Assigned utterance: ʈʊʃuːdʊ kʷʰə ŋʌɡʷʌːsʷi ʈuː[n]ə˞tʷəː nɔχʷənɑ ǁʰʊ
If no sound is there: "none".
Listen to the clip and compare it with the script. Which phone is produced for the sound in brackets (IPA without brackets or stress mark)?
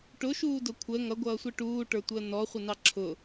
ʈ